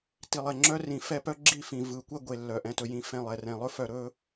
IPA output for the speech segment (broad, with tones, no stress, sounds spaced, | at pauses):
t i˨ lˠ ɛ˨ ŋ͡ǁ œ˦ r ĩ˨ f ɛ˦ p œ˦ ɡ͡ǁ i˦˨ f ĩ˨ v ɯ˨˦ kʷ ɛ˦ ɡʷ e˨ lː œ˨ ʔ ɛ̃˨ t ɵ˨ j ĩ˨ f ɛ̃˦˨ lˠ ɛ˨ r ɛ̃˨ lˠ ɵ˦ f œ˨ ɾ ɵ˦